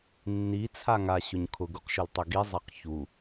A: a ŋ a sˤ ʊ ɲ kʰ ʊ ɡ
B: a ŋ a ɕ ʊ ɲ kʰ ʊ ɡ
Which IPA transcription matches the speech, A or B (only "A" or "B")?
B